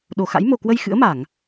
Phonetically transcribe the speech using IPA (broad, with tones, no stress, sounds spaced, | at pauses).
ɗ o˧˩ x a̰˧˥ j m o˨˩ k w ə˧ j x ɨ̰˧˥ ə̯ m a˧˩˨ ŋ